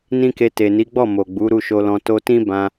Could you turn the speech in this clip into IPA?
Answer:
n ĩ˦ k e˧ t e˨ n i˨˦ ɡ͡b ɔ˦˨ m o˨ ɡ͡b u˨˦ ɾ u˦˨ ʃ o˧ l ɔ̃˧ t o˧ t ĩ˦ b ã˧

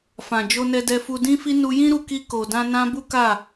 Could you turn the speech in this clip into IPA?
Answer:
f ã˨ d͡ʒ o˧ n ɛ˧ d ɛ˧ f u˧ d ĩ˦ f i˦ n u˧ j ĩ˦ ɾ u˧ k i˧ k o˨ d ã˧ n ã˦ b u˦ k a˦˨

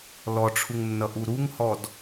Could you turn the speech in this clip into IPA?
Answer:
l ɔ ʈ͡ʂʰ u ŋ nː ʌ ʔ u ɾ u ŋ h ɔ d

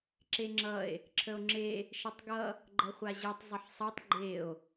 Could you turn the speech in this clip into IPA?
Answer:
ǁ e ŋ͡ǁ ʌ e̯ | ǁʰ ə o̯ ŋ͡ǁ e | ʃ ə tˤ ɡ ʌ | ɡ͡ǃ ʌ χʷ a ʑ e tˤ zˤ ə ħ sˤ ʌ tˤ ɡ͡ǃ e o̯

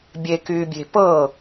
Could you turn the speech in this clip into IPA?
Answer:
bʲ e k yː bʲ e̤ p ɤ

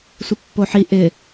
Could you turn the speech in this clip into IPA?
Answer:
sʷ ɪ pː o ħ i ʔ ɪ

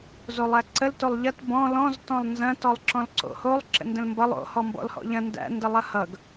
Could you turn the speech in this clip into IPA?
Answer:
z o lˠ æ ǀ ə l t o lˠ ʎ ɐ t b ɔ̃ l ɔ̃ z t ɔ̃ lˠ n z ɐ̃ t ɔ lˠ ǁ ɔ̃ l ǀ o̰ h o lˠ ǁ ə̰ n d ə̃ l m b ʌ lˠ o̰ h ɔ m b ɔ̰ l h ɔ̰ ʎ ɐ̃ n d æ̰ n d ə lˠ ɐ h ʌ ɡ

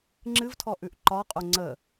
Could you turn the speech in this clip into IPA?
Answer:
ŋ͡ǁ ɨ v tʰ ɔ ʔ ʉ ʔ ǃ ɒ qʼ o ŋ͡ǀ ə

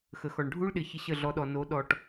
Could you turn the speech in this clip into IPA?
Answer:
x ə˨ x ɔ˨ ɳ ɖʱ u˦ ɭ ɗ ɪ˨ ç ɪ˦ ɕ ə˦˨ ɮ ɔ˧ ɗ ɔ˨ n o˨˦ ɗ ɔ˨ ʈ

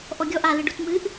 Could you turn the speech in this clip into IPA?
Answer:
ʔ ɔ ɡʲ ɔ ʔ a l ɨ ɖ u t m ɨ ʔ

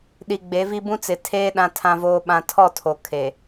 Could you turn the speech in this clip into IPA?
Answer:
ɗ i˨ ɡ͡b e˨˦ v i˦ b ũ˦ t͡s ɪ˨ tʰ eː˦ ɗ ã˦ tʰ ã˦ v oː˦ ɓ ã˦ tʰ ɔ˦˨ tʰ o˨ kʰ e˨

